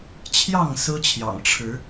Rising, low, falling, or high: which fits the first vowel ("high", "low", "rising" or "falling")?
falling